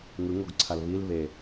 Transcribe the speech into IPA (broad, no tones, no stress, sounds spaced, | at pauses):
ŋ ɯ ŋ o ɡ ǀʰ a l β i l β e